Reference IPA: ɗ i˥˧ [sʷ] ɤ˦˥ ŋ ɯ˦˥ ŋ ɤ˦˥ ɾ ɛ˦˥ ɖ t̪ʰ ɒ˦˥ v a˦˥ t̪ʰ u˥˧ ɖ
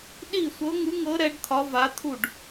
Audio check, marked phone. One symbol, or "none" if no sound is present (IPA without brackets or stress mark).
sʷ